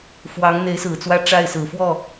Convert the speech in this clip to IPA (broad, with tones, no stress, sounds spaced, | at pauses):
f w ɑ˧˥ ŋ n̪ e˧˥ ɪ̯ s ɹ̩˨˩ t͡s w ä˥˧ ʈ͡ʂ a˥˩ ɪ̯ s ɹ̩˨˩ f w ɔ˥˩